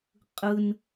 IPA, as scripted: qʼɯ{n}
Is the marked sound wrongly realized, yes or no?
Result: no